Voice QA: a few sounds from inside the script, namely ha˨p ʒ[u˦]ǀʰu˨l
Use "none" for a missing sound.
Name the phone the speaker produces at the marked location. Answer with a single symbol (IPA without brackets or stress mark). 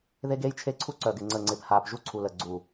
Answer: u˦